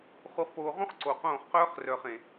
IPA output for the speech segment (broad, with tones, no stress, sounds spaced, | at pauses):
χ u˨ χ p oː˨ ʁ ũ˦ χ ǀ o˨ q õː˦˨ χ q œː˦ χ r œ˨ χ ẽ˨